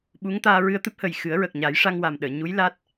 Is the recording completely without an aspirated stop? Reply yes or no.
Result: yes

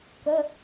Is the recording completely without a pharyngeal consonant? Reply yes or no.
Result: yes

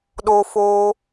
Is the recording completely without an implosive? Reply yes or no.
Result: no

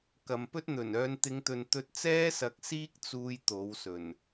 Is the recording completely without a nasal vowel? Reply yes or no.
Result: yes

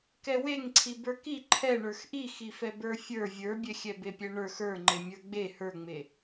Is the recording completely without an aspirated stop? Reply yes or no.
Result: no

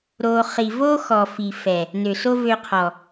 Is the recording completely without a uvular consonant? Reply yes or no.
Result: no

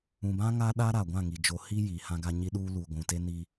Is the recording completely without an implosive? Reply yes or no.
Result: no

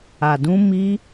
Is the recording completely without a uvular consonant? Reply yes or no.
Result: yes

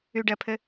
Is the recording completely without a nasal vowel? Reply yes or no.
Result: yes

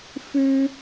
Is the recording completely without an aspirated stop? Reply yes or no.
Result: yes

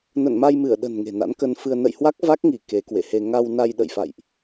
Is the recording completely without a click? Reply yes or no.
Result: yes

